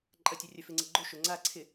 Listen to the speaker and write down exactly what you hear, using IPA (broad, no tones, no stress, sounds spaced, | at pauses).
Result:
ǃʼ ɐ tʲ œ rʲ œ f ɪ ŋ͡ǀ ɪ ɡ͡ǃ o ʃ ʊ ŋ͡ǀ a ǀʰ ɪ